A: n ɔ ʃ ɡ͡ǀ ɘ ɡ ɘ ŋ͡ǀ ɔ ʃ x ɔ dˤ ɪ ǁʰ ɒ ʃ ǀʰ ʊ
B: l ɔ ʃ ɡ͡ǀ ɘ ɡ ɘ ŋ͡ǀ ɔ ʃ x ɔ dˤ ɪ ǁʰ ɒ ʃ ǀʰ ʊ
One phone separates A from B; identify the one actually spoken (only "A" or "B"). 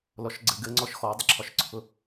B